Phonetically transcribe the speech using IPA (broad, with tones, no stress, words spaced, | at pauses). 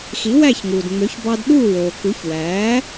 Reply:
xi˩˥wæ˥˩çŋuː˩dŋ͡mø˩˥ç bɑ˧dɗuː˥˩woː˩ ku˩˥çwæː˩˥